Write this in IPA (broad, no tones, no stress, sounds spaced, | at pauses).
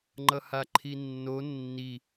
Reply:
ŋ͡ǃ ʌ h a ǃʰ i nː o nː i